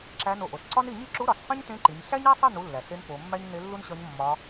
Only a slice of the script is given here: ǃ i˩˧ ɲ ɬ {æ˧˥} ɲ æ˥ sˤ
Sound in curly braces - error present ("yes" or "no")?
yes